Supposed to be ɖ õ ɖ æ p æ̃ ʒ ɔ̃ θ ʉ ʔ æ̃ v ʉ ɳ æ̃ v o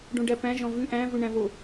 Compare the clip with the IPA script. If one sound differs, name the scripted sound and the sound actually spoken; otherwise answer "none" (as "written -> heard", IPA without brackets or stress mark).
θ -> v